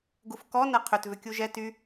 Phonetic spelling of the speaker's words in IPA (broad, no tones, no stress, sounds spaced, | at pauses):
ɡ u f k ɔ n ɐ qʰ ʏ t v ʏ kʲ u ʒ ɛ t y